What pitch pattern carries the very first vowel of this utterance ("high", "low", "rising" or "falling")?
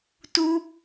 high